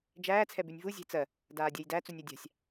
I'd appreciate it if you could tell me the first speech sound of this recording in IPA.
d͡ʒ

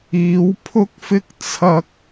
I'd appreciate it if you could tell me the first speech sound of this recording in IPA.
iː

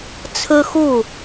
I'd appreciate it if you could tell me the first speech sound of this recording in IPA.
t͡sʰ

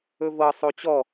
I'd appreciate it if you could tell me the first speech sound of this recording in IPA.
ɵ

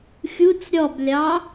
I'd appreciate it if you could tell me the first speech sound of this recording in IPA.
xʲ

